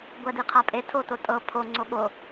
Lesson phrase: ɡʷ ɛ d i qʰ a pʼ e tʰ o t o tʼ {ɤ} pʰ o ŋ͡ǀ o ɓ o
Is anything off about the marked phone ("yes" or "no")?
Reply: no